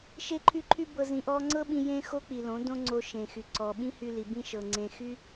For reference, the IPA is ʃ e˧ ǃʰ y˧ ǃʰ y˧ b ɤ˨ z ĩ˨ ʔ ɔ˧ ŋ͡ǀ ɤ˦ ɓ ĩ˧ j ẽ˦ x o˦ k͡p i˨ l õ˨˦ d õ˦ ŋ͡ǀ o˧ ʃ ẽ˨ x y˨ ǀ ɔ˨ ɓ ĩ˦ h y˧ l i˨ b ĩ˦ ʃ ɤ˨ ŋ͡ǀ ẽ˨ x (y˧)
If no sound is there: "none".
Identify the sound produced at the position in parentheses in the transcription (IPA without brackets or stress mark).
y˦